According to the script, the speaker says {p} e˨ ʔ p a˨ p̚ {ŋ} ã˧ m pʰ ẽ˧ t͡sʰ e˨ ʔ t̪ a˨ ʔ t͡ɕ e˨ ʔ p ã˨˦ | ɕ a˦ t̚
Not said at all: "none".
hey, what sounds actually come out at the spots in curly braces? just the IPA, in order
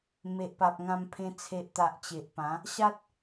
m, ŋ

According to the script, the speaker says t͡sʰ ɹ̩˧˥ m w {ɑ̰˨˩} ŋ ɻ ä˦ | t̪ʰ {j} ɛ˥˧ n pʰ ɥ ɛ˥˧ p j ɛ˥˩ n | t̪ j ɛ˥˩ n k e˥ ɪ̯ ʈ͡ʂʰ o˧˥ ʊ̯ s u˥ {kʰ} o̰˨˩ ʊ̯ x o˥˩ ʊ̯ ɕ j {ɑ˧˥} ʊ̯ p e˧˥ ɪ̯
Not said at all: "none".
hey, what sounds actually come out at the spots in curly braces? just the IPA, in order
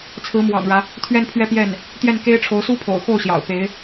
ɑ̰˨˩, ɥ, pʰ, ɑ̰˨˩

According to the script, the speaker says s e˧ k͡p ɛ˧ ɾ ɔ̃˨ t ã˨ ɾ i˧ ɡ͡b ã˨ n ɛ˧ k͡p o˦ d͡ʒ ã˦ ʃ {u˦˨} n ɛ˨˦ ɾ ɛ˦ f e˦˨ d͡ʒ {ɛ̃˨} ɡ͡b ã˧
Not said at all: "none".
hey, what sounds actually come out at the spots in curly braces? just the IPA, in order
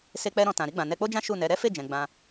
u˦˨, ɛ̃˨

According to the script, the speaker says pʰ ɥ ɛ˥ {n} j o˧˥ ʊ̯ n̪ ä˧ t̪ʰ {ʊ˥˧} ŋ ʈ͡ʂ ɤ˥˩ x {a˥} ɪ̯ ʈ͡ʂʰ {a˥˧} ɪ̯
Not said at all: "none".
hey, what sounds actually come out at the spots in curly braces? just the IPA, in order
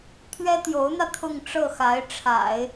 t̪, ʊ˥˧, a˧˥, a̰˨˩˦

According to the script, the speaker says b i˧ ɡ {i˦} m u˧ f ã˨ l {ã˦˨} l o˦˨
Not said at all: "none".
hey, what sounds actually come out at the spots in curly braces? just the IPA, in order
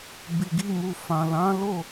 i˦, ã˨˦

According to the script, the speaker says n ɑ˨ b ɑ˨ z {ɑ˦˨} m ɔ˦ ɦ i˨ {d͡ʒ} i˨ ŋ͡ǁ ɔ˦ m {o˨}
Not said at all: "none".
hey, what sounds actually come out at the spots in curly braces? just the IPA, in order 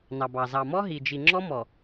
ɑ˨, d͡ʒ, ɔ˨

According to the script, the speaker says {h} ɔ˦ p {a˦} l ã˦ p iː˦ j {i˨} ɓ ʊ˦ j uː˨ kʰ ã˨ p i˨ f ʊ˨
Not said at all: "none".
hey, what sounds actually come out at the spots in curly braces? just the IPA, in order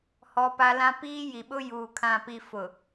h, a˦, i˨

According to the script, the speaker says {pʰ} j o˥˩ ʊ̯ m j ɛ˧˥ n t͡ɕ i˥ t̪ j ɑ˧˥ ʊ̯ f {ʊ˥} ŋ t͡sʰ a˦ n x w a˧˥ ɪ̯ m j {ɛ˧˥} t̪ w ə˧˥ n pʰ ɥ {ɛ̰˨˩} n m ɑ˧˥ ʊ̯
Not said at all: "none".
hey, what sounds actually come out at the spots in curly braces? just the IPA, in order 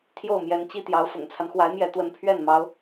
t̪ʰ, ʊ̰˨˩, ɛ˧˥, ɛ˥˩

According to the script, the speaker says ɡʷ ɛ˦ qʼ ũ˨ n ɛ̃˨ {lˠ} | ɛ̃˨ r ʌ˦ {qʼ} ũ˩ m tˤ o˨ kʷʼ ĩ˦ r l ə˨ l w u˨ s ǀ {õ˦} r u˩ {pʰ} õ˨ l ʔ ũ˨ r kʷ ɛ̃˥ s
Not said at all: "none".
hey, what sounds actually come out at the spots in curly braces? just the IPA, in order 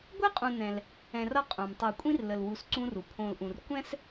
l, qʼ, ũ˦, pʰ

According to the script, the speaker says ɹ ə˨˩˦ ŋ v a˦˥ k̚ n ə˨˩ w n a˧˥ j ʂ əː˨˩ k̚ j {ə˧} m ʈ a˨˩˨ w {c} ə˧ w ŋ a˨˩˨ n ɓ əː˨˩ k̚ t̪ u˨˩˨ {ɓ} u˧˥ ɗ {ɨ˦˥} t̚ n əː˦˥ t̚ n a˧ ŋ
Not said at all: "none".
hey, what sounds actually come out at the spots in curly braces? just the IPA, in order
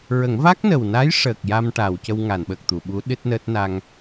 a˧, c, ɓ, ɨ˦˥

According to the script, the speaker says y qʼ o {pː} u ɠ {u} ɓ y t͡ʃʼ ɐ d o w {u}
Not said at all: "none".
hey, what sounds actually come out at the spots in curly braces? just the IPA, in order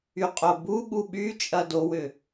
b, u, ʏ

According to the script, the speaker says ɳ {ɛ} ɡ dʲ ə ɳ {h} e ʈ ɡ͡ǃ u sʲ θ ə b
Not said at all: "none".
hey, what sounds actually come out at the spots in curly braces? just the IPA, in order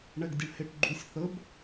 ɛ, h

